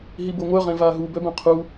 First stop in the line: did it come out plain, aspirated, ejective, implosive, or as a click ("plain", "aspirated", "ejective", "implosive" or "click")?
plain